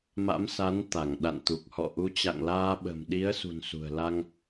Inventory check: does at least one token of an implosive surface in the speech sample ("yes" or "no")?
yes